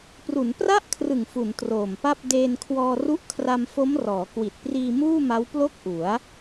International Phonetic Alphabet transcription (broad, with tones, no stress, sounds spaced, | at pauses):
p r u˩˦ n p r a˥˩ ʔ kʰ r ɯ˨˩ ŋ f u˩˦ n t r oː˨˩ m p a˥˩ p̚ d eː˧ n kʰ w ɔː˧ r u˦˥ ʔ kʰ r a˧ m f o˦˥ m r ɔː˩˦ k w i˨˩ t̚ p r iː˧ m uː˥˩ m a˦˥ w p l o˥˩ k̚ ʔ u˩˦ a̯